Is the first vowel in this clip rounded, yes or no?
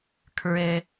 no